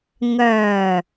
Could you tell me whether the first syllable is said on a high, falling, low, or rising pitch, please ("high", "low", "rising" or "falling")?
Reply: low